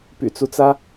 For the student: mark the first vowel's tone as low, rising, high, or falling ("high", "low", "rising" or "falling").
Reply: low